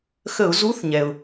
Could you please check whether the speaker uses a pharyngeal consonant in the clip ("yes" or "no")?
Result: no